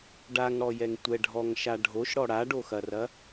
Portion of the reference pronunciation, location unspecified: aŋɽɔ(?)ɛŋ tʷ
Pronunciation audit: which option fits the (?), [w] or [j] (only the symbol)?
j